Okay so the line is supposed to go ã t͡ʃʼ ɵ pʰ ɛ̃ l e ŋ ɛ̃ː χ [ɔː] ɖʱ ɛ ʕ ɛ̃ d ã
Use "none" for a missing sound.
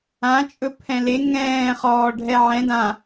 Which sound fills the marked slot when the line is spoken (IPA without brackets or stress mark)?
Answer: ɔː